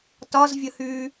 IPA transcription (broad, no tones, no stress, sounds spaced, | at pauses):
t ɒ z vʲ ə h y